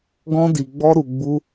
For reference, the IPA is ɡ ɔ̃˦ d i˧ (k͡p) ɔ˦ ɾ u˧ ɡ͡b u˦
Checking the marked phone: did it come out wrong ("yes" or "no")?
yes